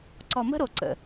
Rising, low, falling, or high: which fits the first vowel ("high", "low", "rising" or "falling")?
low